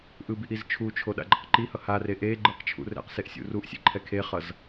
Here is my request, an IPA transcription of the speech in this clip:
ʔ ɯ b i ʔ i z t͡ʃʰ u t͡ʃʰ o ɗ a̰ ɡ͡ǃ ʌ q ǃ i h ʌ h a r e ʔ e ɡ͡ǃ ɯ q t͡ʃʰ ṵ r ɛ̰ q s e ʔ sʲ ṵ r u ʔ sʲ ḛ ǃʰ ɛ kʰ e χ ʌ z

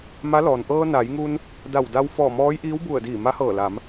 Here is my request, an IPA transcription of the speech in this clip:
m a˧˥ l ɔː˩ n ʔ ɤː˧ n a˩˧ j ŋ u˧ n | d a˧˩ w d a˧ w f ɔː˧˩ m ɔː˧˥ j ʔ iː˧˥ w b u˧˩ ə̯ d iː˧˩ m a˧˥ h ɤː˧˩ l a˩˧ m

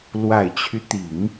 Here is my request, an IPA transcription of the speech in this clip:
l w a˨˩ ɪ̯ t͡ɕʰ y˦ t̪ i˨˩˦ ŋ

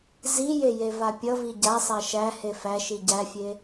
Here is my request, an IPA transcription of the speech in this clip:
z i j e j e v a pʲ ʌ v i ɟ a sˤ a ʃ æ h e f æ ʃ i ɟ æ fʲ e

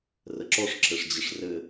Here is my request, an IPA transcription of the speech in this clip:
r ə ǁ ɔ ʂ ǁʰ ɘ ʂ d͡ʑ ə ʂ r ɘ

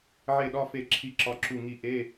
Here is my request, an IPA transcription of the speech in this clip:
ʕ e˦˨ ɗ ɒ˧˥˧ f e˦˨ ǁʰ i˦˨ ǁ ɒ˦˨ ǁ u˦˨ ŋ i˦˨ ʔ e˧˥˧

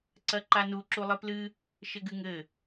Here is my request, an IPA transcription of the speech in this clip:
ǀ ɐ ǃ a n u ǁ u lˠ ɨ p l ɨ | ʃ ɘ ɡ ɨ ŋ ɘ

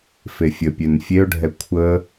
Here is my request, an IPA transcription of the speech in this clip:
f e fʲ ə pʲ ø n fʲ e ʊ̯ ɖʱ ɛ kʷʰ ə

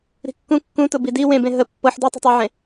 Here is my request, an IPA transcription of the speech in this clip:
ɾ i̤ kː ũ kː ũ t ʊ b i d i w ẽ b ẽ ɦ ə pː ɤ ħ d u tˤ i̤ tˤ ə w ʕ ẽ

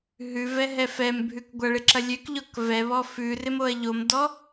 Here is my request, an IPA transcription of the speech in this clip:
ɦ ʉ v ɛ ɦ ɛ f ɛ m bʱ ʉ k ɡʷ ɐ ɭ ɪ ǁ ɐ lʲ ø k ʎ ɔ k v ɛ β ɔ f ʉ r ɪ m o ɐ̯ ʎ o m d ɔ

